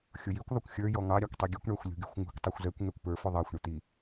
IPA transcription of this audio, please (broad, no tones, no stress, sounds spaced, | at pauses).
xʲ ʊ j i kʷ ðˤ ʊ kʷ xʲ ə˞ j ɔ ŋ ɑ ɾʲ ɑ kʷ tˤ i ɡʲ u kʷ ɳ æ xʷ lʲ ṳ ɡʲ ṳ xʷ ŋ ṳ kʷ tˤ u xʷ z ɛ kʷ ŋ ɛ kʷ p ə˞ f ʊ ðˤ ɑ xʷ ɳ ə t̪ i